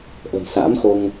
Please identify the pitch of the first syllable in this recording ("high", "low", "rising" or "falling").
low